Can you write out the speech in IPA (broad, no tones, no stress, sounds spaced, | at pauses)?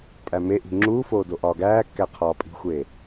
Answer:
pʼ æ m e ʔ i̤ ŋ͡ǁ uː f oː d o ʔ ɒː ɡ æː kː æ qʰ ɒː pʼ i̤ xʷ eː